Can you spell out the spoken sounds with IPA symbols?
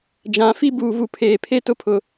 d͡ʒ ã˨˦ f i˦ b uː˨ v u˨ pʰ eː˨ pʰ e˦ t ʊ˦ pʰ ʊ˨

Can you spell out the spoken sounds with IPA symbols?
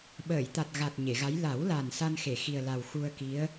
ɓ əː˨˩˨ j t̪ a˨˩ t̚ ɣ a˨˩ t̚ ɲ e˨˩˨ ɣ a˧˥ j l a˨˩˦ w l a˨˩ n s a˧ n x e˨˩˨ x i˨˩ ə̯ l a˨˩ w x u˧ ə̯ k i˧˥ ə̯

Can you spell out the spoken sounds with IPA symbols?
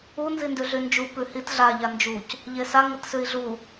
u n z i n d ʉ ɮ y n d͡ʒ u p ʉ h i t ɮ a ʎ a n d͡ʒ u c | ʎ e s a ŋ ɘ t s ʉ i̯ ɮ u

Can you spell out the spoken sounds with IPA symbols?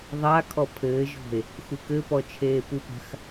ðˤ a kʰ ɔ pʰ ɘː ʒ ɔ̤ e̯ | x u k ɘ p ɔ t͡ʃʰ eː p u p a̤ x

